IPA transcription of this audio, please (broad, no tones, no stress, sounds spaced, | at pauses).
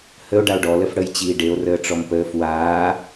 h ə o̯ ɖ a o̯ ɖ ɔ l ə f ɽ ə j t͡ɕ iː ɖ e o̯ r əː ʈ͡ʂ ɔ m p əː f w aː